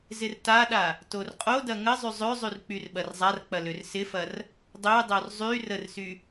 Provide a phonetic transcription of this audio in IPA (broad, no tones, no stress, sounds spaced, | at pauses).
z ɪ r t a ɗ a | t o r qʼ o d ɐ ŋ ə zˤ y zˤ ø zˤ y r k͡p y r ɓ ɐ r zˤ a r k͡p ɐ l ø r s ɪ f ɐ r | dˤ ø dˤ o r zˤ y r ə r s y